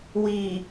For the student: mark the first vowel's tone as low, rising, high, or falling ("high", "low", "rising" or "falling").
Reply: low